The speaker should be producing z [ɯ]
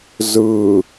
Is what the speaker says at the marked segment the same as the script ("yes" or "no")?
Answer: yes